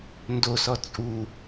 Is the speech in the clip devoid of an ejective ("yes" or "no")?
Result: no